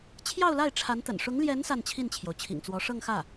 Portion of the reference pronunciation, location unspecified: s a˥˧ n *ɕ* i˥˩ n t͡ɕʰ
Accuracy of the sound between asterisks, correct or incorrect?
incorrect